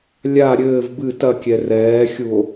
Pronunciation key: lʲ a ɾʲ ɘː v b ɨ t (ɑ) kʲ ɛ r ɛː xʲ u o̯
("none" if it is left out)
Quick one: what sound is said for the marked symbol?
ɐ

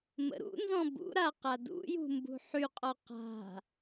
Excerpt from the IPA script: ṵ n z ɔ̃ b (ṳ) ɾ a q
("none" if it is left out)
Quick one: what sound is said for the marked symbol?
ṵ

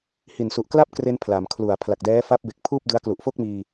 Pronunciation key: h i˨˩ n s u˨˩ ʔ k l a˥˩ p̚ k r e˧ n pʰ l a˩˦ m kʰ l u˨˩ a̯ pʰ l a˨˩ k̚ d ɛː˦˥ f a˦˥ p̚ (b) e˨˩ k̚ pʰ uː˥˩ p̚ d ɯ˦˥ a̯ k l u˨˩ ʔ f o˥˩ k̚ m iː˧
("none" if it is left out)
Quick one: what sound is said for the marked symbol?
b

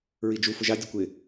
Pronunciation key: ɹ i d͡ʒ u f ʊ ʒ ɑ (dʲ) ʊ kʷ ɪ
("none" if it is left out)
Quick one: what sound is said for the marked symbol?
dʲ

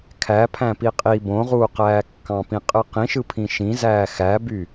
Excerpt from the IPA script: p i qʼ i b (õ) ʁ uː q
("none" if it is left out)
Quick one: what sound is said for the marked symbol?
õ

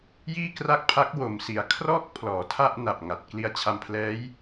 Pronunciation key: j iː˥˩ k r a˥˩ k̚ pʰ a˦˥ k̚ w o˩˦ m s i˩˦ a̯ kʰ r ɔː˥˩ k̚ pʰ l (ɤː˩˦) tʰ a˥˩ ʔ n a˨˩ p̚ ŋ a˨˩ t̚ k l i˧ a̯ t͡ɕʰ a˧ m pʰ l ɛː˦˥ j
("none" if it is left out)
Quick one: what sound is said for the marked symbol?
ɔː˩˦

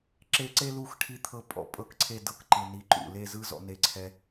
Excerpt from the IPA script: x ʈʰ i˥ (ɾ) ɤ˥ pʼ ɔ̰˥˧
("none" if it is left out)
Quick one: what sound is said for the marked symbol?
t̪ʰ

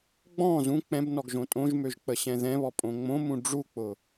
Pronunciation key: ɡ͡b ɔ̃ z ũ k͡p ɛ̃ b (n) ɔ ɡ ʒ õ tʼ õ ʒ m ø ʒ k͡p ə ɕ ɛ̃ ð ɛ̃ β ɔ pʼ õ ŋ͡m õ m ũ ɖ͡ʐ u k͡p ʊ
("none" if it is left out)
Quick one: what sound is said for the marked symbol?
n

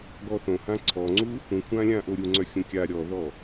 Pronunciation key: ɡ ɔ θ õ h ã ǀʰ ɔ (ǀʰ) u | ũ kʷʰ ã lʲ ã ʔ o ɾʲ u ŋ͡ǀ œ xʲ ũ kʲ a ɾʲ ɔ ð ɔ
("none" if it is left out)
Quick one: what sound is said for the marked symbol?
ŋ͡ǀ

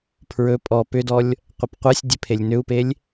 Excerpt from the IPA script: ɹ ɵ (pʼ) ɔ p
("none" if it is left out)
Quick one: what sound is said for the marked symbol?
pʼ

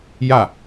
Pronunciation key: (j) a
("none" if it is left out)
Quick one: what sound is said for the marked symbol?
j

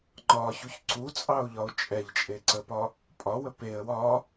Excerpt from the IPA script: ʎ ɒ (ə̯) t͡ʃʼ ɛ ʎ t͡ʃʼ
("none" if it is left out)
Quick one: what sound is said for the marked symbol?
ʊ̯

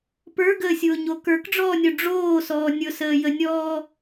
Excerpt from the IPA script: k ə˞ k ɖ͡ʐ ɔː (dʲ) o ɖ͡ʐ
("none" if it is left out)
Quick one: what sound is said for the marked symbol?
nʲ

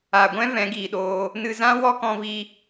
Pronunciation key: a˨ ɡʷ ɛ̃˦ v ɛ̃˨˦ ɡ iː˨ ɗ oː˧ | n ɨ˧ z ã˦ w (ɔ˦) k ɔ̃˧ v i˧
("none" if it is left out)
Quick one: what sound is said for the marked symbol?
ɔ˦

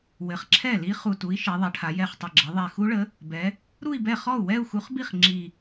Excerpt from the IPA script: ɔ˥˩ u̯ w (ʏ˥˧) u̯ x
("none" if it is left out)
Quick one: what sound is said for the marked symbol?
ɛ˥˧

